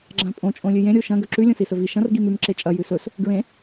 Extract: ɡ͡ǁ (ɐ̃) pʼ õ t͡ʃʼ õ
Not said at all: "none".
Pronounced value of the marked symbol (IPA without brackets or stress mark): ã